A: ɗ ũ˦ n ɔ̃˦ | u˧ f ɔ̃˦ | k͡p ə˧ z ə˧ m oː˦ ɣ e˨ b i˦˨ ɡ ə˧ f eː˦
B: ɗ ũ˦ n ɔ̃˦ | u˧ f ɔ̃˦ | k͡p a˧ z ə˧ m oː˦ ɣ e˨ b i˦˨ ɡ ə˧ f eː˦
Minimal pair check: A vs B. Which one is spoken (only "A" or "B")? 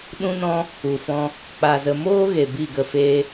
B